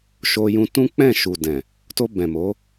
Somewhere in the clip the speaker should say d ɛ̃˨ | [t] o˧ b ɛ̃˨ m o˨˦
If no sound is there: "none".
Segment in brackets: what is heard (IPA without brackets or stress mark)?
t